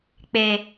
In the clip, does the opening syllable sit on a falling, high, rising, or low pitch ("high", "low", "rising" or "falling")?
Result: low